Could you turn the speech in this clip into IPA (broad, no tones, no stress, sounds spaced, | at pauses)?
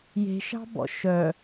j e̤ ʃ ɑ̤ b ɔ̰ ʃ œ